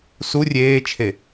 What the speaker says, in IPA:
s u rʲ eː t͡ʃʰ e

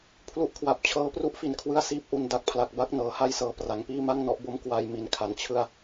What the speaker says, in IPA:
pʰ l u˦˥ ʔ kʰ w a˨˩ p̚ t͡ɕʰ ɤː˦˥ p r u˥˩ ʔ f i˨˩ n kʰ w ɯ˦˥ a̯ s iː˦˥ p̚ ʔ u˧ n d a˨˩ k̚ pʰ l a˨˩ k̚ b a˥˩ k̚ n ɤː˩˦ h a˦˥ j s ɤː˨˩ p r a˩˦ ŋ p iː˥˩ m a˥˩ ŋ n ɔ˦˥ ʔ b o˦˥ m k w a˧ j m i˨˩ n kʰ a˨˩ n t͡ɕʰ ɯ˥˩ a̯

